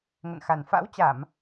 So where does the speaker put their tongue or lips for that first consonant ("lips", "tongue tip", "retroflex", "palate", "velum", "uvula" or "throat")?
velum